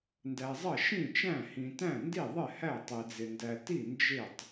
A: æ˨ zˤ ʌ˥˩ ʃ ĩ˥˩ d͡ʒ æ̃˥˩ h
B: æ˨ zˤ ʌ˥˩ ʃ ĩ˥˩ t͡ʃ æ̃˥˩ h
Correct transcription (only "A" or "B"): B